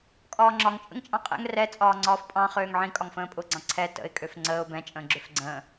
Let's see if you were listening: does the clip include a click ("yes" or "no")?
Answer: yes